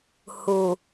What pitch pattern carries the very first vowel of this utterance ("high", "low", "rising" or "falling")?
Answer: low